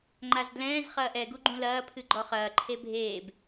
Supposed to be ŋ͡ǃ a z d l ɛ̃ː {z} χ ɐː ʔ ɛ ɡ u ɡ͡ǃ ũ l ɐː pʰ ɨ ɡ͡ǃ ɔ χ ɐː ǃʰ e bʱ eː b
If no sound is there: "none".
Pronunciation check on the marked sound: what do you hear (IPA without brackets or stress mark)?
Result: z